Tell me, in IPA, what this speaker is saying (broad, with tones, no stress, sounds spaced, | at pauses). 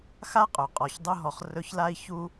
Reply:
x a˥ qʼ ɵ˩ qʼ ɔ˨ ç dˤ ɵ˦ ɦ ɔ˨ χ r ɵ˦ ç l a˥ i̯ ç u˦